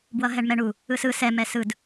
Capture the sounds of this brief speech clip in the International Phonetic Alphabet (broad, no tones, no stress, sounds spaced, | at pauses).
b w ʌ ɦ ɛ ɳ m ɛ ɳ u | ɯ s ɯ s ɛ m ɛ s ɯ d